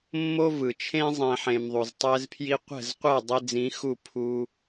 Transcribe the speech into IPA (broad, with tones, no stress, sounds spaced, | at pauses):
mː o˦ v ɯ˨ t͡ʃʰ ẽ˦ zˤ ẽ˦ ħ ẽ˧ m ðˤ u˨ z tˤ ɛ˦ z pʰ j i˦ qʷ ɛ̤˦˨ z qʷ ɛ˦˨ dˤ i˧ d͡z ĩ˨˦ x u˦˨ pʰ u˦